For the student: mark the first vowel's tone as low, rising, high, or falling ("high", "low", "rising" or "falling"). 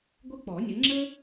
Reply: high